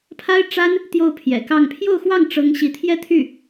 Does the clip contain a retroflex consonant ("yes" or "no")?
yes